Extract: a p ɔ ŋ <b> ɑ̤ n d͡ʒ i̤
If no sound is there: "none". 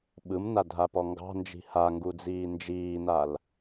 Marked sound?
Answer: ɡ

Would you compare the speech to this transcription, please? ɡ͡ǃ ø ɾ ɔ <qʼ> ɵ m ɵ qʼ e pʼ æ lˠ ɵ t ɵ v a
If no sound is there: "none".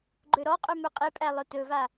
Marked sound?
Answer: qʼ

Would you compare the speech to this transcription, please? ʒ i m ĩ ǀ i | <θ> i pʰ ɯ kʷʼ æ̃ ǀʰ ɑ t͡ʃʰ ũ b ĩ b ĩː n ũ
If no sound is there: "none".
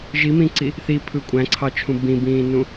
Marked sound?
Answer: θ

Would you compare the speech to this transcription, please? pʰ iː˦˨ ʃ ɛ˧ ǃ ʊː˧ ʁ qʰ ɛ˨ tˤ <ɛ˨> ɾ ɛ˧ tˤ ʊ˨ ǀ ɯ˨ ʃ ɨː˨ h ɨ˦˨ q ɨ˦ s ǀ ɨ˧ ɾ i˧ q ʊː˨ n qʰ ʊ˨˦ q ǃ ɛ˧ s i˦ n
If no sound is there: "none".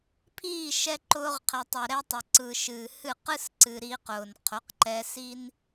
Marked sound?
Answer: ɛ˨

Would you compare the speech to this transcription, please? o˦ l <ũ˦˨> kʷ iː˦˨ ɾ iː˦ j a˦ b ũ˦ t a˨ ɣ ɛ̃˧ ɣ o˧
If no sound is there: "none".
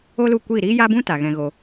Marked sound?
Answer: u˦˨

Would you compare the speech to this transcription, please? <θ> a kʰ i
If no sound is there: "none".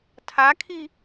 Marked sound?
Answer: tʰ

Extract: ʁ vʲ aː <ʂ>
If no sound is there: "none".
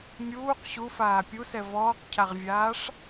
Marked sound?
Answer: ʂ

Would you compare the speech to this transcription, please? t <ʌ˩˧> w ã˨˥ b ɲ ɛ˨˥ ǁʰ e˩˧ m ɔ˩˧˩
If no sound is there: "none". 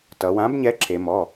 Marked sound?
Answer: ʌ˩˧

